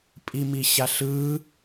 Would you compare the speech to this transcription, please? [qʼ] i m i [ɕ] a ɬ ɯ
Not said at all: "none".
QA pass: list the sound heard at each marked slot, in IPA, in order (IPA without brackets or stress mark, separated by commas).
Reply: pʼ, ɕ